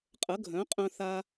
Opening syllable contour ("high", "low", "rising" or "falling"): rising